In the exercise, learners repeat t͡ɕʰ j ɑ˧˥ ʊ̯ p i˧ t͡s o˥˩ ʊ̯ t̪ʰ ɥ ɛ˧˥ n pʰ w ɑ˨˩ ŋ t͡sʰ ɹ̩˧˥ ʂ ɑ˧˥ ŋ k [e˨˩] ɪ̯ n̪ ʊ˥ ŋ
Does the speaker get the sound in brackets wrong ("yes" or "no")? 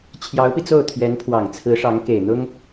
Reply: no